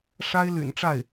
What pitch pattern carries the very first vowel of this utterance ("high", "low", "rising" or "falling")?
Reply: high